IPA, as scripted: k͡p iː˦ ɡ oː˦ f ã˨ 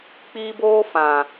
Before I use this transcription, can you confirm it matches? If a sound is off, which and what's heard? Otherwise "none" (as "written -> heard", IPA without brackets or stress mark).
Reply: ɡ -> b